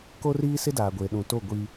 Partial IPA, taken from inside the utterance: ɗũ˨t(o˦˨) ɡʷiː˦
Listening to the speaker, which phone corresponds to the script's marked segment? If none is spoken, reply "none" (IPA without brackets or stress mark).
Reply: o˦˨